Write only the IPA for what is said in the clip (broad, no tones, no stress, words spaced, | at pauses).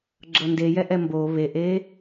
ɡ͡ǁɤndejɛʔɛ mbo βeʔe